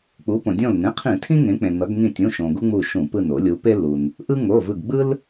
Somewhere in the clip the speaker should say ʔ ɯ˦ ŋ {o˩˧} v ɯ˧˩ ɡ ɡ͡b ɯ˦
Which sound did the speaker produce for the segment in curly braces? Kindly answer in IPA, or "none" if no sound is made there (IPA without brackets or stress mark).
o˩˧˩